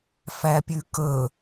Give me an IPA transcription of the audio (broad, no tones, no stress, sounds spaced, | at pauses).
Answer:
f æ pʲ ʉ k ɵ